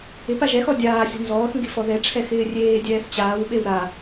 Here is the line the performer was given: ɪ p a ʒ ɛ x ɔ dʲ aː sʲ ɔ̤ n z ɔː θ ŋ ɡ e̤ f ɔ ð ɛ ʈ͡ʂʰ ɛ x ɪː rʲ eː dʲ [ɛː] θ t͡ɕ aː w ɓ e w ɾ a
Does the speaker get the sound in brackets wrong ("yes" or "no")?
no